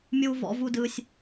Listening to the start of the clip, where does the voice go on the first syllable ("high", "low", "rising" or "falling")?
low